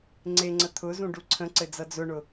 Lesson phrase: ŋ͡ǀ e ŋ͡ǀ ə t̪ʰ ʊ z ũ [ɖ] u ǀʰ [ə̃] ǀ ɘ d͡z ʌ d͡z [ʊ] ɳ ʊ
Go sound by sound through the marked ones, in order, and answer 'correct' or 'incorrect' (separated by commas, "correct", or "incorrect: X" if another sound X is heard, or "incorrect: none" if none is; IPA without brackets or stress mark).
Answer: correct, correct, correct